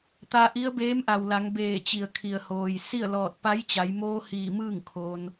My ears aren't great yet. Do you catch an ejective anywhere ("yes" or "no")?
no